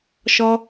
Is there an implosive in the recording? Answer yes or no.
no